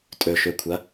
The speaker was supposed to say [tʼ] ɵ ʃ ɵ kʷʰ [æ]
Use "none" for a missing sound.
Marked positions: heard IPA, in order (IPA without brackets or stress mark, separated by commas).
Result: tʼ, ɐ